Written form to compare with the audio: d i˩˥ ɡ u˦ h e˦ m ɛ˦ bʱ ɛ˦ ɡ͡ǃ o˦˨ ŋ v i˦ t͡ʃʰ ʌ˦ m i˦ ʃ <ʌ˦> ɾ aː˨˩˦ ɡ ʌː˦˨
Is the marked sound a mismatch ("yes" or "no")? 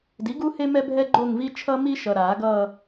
yes